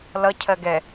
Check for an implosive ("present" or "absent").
absent